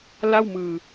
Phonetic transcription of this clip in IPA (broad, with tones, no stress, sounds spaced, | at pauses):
l a˥˩ w m ɯː˧